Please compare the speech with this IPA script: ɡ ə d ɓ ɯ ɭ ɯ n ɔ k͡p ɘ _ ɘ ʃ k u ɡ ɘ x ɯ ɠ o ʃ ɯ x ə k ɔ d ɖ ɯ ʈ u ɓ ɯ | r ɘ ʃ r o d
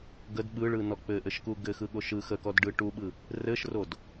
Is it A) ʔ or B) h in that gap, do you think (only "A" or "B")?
A